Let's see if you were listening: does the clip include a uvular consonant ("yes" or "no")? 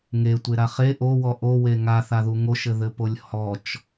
yes